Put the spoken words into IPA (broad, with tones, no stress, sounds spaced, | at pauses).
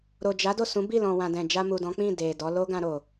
ɾ o˨ d͡ʒ a˨˦ d o˦˨ s ũ˨˦ b i˦˨ l ɔ̃˨ w ã˨ d ɛ̃˨ d͡ʒ a˧ m u˨ d ɔ̃˨˦ k͡p ĩ˦˨ d e˨ d ɔ˨˦ l o˦ ɡ ã˧ ɾ o˨